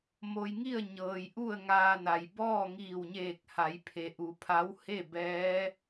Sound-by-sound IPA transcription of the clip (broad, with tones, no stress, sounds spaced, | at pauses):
m o˧ j ŋ i˥˨ ə̯ ɲ ɤː˩ j ʔ u˥˨ ə̯ ŋ aː˧ n a˩ j b ɔː˥˨ ŋ iː˧˩ w ɲ eː˧˩ k̚ h a˩˧ j pʰ e˩ ʔ u˩˧ pʰ a˧˥ w h e˥˨ b ɛː˧˥